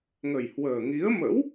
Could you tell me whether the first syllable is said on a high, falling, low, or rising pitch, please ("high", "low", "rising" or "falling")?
low